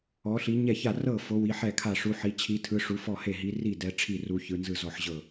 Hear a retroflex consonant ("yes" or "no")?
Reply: yes